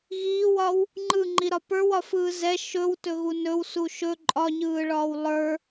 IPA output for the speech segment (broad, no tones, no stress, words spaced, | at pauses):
ɣiːwɒw | ŋ͡ǃɯŋ͡ǃiɾɒ pə˞wɒfɯː zɛ ʃɵwtɵɣu nɵwsu ʃɵ ǃʼɒɲɯːɭɒːw lˠə˞